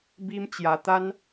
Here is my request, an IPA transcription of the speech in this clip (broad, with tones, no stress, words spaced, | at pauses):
bi˦m t͡ɕja˧ t̪a˦n